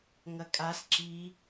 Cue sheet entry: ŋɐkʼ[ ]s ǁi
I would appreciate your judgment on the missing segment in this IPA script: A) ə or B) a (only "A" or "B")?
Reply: B